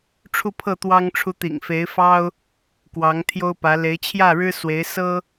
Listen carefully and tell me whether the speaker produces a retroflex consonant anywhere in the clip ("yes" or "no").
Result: yes